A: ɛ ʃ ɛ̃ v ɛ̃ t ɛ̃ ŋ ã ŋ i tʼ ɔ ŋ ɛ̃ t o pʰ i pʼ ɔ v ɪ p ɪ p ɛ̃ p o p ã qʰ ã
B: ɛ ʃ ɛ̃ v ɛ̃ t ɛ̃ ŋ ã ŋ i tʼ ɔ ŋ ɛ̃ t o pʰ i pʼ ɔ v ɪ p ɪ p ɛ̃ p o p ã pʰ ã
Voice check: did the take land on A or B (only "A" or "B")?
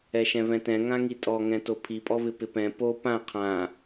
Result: A